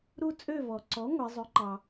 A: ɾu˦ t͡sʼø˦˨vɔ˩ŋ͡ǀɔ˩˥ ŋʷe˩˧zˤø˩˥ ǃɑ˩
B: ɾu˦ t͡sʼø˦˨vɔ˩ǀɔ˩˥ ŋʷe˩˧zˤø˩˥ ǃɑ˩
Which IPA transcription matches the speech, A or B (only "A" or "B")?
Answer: B